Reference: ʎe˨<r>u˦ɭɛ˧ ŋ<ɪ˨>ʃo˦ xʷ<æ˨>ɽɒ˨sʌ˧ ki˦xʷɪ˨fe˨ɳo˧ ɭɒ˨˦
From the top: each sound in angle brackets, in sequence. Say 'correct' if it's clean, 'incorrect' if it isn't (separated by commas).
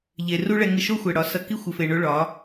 correct, incorrect, incorrect